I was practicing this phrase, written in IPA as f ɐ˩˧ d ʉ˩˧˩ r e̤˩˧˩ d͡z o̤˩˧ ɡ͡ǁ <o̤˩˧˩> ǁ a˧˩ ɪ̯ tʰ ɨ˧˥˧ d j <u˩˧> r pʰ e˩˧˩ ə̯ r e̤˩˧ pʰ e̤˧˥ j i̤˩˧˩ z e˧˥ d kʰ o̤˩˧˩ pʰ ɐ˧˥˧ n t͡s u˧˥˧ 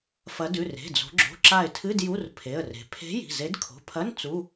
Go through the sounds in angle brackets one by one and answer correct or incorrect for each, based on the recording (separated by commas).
correct, incorrect